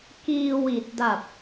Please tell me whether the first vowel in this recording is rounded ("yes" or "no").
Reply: no